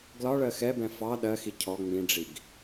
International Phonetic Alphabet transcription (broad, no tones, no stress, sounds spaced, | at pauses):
ɡ l ɒ ɭ ɜ x ɛ b ɛ̃ f ɑ ɗ ɜ x i cʰ ɔ ŋ͡m ĩ ɖ͡ʐ i ɡ